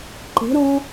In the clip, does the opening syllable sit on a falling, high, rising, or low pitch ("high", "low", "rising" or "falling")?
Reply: rising